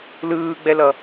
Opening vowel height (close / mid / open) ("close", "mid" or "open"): close